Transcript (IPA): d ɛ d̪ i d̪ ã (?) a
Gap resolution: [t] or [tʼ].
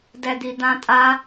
tʼ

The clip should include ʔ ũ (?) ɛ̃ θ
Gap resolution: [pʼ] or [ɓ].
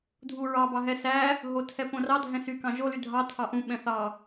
ɓ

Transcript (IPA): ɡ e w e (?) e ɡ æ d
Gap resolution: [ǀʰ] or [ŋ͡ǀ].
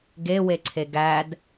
ǀʰ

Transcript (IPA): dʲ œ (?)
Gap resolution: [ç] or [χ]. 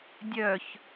ç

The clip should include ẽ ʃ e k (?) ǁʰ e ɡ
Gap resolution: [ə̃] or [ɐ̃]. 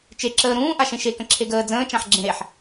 ə̃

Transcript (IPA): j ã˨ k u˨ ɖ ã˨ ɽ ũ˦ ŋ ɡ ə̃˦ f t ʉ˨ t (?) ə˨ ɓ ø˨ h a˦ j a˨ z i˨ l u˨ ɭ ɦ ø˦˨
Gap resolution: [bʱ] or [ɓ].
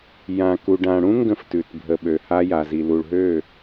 bʱ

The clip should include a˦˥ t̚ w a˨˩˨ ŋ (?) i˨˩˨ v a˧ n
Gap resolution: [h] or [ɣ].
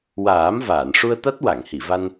h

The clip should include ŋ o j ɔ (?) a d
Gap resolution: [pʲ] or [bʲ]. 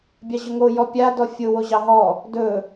pʲ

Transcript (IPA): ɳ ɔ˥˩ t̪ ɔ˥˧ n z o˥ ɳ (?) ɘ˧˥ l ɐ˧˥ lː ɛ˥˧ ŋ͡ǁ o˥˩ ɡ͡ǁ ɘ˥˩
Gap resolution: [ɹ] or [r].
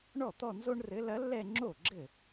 r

